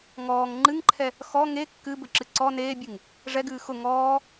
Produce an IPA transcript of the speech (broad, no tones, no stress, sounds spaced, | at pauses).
ŋ ɔː ŋ ŋ͡ǃ ɨ ŋ ǃʰ ɛ | x ɔ ŋ e kː ɨ b ɘ ǁ ɨ ǀ ɔ n eː bʲ ɨ ŋ | ʐ ɛ ɡ ɨː x ʊ ŋ ɔː